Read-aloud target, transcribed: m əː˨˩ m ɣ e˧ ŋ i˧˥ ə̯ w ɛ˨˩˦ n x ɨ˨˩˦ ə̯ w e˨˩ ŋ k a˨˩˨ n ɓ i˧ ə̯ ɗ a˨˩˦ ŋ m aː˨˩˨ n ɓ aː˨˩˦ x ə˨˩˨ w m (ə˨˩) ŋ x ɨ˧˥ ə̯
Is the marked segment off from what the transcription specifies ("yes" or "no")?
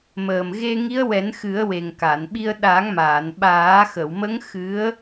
yes